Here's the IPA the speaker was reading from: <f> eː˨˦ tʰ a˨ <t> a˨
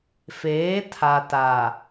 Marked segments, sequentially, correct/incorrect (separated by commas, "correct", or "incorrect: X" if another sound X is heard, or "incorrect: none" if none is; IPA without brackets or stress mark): correct, correct